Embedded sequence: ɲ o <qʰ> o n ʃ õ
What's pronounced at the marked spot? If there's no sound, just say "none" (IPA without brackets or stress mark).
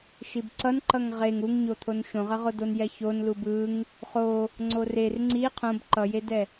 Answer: t̪ʰ